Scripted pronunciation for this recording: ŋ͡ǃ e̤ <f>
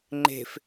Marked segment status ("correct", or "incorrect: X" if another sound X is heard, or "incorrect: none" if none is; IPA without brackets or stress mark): correct